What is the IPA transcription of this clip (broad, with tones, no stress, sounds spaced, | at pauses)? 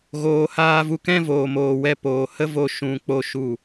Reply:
ɣ oː˨ h aː˧ v u˧ k ɛ̃˦ v oː˨ m oː˨ w ɛ˧ p oː˨ h ə˦ v o˧ ʃ ũ˧ k͡p o˧ ʃ u˦˨